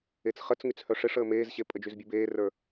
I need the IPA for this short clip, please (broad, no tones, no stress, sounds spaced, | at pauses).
e t͡s χ ə t͡s ŋ y t͡s h œ ʂ e ʂ əː m eː z ɕ e pʼ ə d͡ʒ y z bʲ u b eː r ə˞